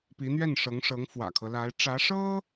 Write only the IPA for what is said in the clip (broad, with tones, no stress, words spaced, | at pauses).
pi˧˥n̪ɥɛ˥˩nʂɤ˧˥ŋʂɤ˧˥ŋ fwä̰˨˩kʰɤ˦la˧˥ɪ̯ ʈ͡ʂä˧˥ʂɤ˥